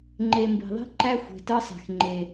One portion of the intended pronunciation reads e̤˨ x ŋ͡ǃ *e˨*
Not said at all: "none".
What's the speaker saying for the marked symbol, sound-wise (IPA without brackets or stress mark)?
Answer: e˨